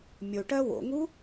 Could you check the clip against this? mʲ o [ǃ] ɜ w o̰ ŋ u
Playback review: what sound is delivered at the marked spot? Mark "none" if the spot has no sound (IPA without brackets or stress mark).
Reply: ʈ